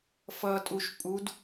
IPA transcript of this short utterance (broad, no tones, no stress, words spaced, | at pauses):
fʌtʼuʃ pʼud